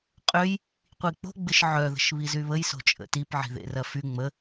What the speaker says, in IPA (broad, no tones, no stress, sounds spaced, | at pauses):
qʼ ø j | qʷ i k͡p o̤ ɡ͡b ɪ ʃ ʕ œ ð ə̤ ʃ β i z y β ə j s o̤ t͡ʃʼ ə̰ t i p ʕ i̤ ð ḛ r ɐ f y ŋ͡m ə